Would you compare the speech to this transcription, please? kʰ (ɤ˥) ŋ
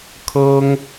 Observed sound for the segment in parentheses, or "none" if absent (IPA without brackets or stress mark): ɤ˥